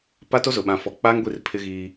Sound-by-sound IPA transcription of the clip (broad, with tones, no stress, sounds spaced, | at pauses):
p a˦ t o˦ z ʊ˨ ɓ ã˨ f ɔ˨ k͡p aː˦ ŋ ɡʷ i˦˨ r pʰ ɪ˦ ɣ iː˦